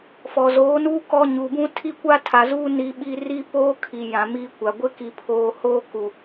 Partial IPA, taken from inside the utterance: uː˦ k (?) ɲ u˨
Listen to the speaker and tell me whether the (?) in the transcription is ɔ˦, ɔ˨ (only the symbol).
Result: ɔ˦